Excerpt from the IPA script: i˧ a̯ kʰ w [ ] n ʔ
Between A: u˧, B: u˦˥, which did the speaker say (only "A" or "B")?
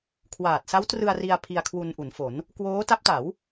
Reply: A